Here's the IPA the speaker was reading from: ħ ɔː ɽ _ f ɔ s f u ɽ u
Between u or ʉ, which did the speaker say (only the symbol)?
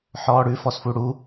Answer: ʉ